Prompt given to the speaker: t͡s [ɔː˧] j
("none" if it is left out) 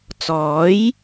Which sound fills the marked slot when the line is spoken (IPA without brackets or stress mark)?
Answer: ɔː˨˥